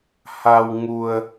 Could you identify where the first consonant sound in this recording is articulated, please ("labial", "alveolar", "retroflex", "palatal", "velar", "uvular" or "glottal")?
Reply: glottal